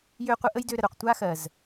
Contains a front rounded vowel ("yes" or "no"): yes